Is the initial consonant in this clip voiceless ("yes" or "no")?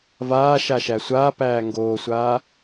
no